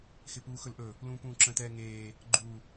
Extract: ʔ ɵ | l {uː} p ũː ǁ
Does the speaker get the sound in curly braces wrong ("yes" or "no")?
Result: yes